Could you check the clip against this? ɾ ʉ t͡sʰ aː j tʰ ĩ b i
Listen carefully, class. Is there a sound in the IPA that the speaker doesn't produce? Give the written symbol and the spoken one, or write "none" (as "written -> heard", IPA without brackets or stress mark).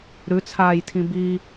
none